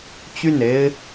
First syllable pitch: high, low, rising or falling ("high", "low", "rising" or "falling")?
falling